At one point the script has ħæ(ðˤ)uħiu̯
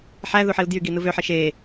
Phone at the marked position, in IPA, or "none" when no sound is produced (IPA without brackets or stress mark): ð